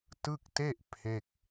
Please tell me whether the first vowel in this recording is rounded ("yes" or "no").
no